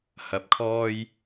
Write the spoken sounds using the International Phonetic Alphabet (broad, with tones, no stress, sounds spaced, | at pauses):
h ɐ˨ p̚ kʰ ɔː˧ j